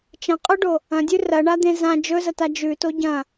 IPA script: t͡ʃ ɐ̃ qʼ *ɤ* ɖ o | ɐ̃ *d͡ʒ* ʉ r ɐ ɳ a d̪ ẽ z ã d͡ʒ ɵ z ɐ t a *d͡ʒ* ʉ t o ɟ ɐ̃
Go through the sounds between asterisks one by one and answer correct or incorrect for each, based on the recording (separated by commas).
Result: incorrect, incorrect, correct